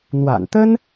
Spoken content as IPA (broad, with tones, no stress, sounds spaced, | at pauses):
n̪ w a̰˨˩ n t̪ ə˥ n